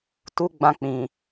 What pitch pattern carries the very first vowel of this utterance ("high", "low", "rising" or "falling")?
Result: high